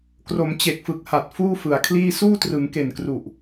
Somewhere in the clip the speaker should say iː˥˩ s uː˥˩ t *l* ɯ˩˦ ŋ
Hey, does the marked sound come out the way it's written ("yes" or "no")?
no